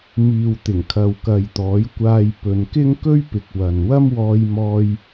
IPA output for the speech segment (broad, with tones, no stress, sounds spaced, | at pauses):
m iː˨ w t̪ ɪ˨˩ ŋ kʰ ɐ˨ w k ɐ˨ j t̪ ɔː˨˥ j kʷ aː˧ j p ɵ˨˧ n k ɪ˥ ŋ k ɵ˥ ɥ p ɪ˨ k̚ w ɐ˨ n w ɐ˥ m w ɔː˧ j m ɔː˧ j